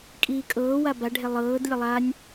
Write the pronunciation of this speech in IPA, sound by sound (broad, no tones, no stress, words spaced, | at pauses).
kʼiːkʼɤːwa baɖʱe lˠɤːd lʲəlˠanʲ